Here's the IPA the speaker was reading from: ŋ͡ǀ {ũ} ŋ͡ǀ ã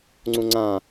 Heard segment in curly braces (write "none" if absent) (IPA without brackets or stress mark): ũ